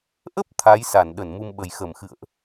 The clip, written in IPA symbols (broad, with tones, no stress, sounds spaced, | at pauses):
ʔ ə˦˥ p̚ t̪ʰ a˨˦ j s a˧˩ n ɗ ə˧˩ n m u˧ m ɓ ə˨˩ j x ə˧˩ m x ɨ̰˧˨ ə̯ ʔ